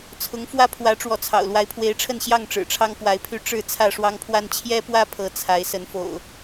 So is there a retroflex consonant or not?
yes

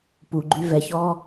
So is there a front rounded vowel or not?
yes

